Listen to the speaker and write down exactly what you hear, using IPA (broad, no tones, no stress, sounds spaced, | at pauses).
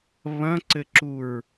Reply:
β ɐ̃ ǀ ɘ ǁ u ɹ